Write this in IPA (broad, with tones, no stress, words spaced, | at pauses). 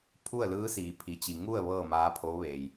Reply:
pʰu˥˨ə̯lɯː˧˥siː˩ pʰi˩t͡ɕi˩ ŋu˥˨ə̯ ʋɤː˥˨maː˧˥pʰoː˧˥ʋeː˩j